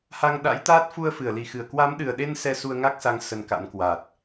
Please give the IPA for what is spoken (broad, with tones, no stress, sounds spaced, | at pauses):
h a˧ ŋ ɗ a̰˧˥ j t̪ aː˦˥ t̚ f u˧ ə̯ f ɨ˧˩ ə̯ l i˨˩ x ɨ˧˩ ə̯ k w a˨˦ m ɗ ɨ˨˩ ə̯ ɗ e˧ n s ɛ˧ s u˧ ə̯ ŋ a˦˥ k̚ s a˨˦ ŋ s ə˧ n k a̰˧˥ n k w a˨˩ t̚